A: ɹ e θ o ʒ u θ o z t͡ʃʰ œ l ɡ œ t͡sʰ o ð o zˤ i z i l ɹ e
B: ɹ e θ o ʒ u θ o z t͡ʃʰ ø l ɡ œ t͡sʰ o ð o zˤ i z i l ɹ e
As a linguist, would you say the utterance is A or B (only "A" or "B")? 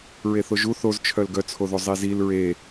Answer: A